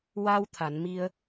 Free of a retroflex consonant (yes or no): yes